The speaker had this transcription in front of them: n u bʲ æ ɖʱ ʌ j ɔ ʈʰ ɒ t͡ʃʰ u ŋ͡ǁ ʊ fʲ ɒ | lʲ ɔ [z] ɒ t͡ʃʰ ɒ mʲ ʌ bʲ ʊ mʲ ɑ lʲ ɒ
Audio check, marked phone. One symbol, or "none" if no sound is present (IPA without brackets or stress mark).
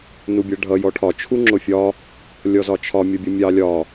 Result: z